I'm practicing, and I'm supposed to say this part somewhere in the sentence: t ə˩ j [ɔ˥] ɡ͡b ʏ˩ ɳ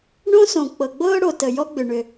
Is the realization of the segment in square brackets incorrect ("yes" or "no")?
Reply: no